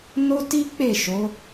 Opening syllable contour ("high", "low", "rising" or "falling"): high